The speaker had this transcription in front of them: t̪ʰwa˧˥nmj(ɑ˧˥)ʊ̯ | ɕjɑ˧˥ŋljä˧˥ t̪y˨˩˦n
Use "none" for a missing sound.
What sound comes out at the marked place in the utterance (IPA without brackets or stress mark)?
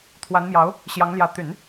ɑ˧˥